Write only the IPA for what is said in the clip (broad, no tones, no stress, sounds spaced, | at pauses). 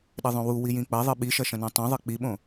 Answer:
ɗ ɘ ðˤ õ w u w i j ĩ k͡p ɐ ðˤ ɨ ɓ i ʃ ɐ ʃ ɐ̃ n õ tˤ ũ ðˤ ɨ k͡p i ɓ õ